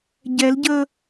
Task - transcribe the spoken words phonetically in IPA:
ɟ ɛ l ɟ ə

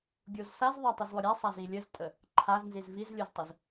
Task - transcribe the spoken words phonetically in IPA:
ɡʲ o z s a z ðˤ a tˤ ʊ z lˠ ʊ ɾʲ a sˤ a z i lʲ ə z tʼ ə | ǃʰ a z n z i z v i z lʲ o z tˤ ʊ z

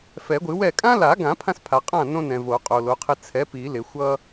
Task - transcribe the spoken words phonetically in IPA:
f ɛ˨˩˦ ɡʷ ɨ˨˩˦ w ɛ˥˩ kʼ ã˦ l a˨˩˦ ɡ ã˨˩˦ pʰ ã˦ s pʰ a˨ qʼ ã˥˩ n õ˦ n ɛ̃˨ v o˨˩˦ qʼ o˨ l o˩˥ qʰ ɪ˦ t͡sʰ ɛ˩˥ p i˨˩˦ l ɪ˨˩˦ xʷ ʌ˦

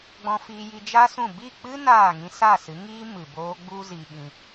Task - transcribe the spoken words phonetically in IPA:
ɡ͡b ɔ̃˧ f iː˧ j i˧ d͡ʒ a˦ s ũ˦˨ b i˦˨ k͡p ɨ˦ n aː˦˨ ŋ ĩ˧ s a˦˨ s ɨ˨˦ ŋ iː˦ m ɨ˨ b oː˧ ɡ͡b u˦ z i˧ ɓ ĩ˧

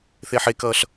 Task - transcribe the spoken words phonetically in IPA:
θ e ħ e k ʌː ɬ

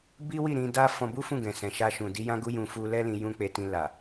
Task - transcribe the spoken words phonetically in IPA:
b i˦ w i˦˨ ɾ ĩ˧ d a˦ f ɔ̃˧ b u˦ f ũ˦˨ ɡ ɛ̃˨ s ɛ̃˨ ʃ a˧ ʃ ũ˨ d i˨˦ j ã˦ ɡ u˦ j ũ˧ f u˧ l ɛ˦ l ĩ˧ j ũ˦ k͡p e˧ t ĩ˧ l a˨

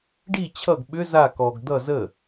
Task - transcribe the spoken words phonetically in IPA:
ɖ i t͡ɕʰ ʌ ɡ ɓ ʏ z a k ɔ ɡ d̪ ʌ z ə

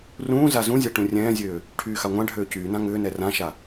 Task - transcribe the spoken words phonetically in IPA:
r ũː z a z ũ zʲ a ʈ ũ rʲ ɛ̃ː zʲ øː | ʈʰ yː x a ŋʷ ã ɖʱ øː c yː n ã ŋ ʏː n ɛ r ã ʃ a

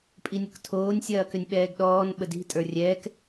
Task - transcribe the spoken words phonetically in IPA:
pʼ i nʲ ɐ k tʰ oː nʲ sʲ ɐː k ʏ nʲ ɓ ɛː ɡ ɗ ɔː n ɓ ə d i̤ tʼ ə˞ rʲ ɛː k

